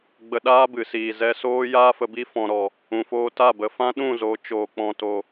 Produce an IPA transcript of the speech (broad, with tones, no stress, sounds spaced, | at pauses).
ɡ͡b ə˧ ɗ aː˦ b ɨ˨ s iː˨ z ɛ˧ s oː˦ j aː˦ f ə˧ b i˦ f ɔ̃˨ ɾ ɔ˨ | ũ˨ f oː˧ t a˦˨ b ə˨ f ã˦ ɗ ũ˦˨ z o˨˦ t͡ʃ oː˨ k͡p ɔ̃˨ t o˨